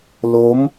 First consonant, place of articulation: alveolar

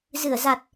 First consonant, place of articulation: alveolar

